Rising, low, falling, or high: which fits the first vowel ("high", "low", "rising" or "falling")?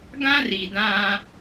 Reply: high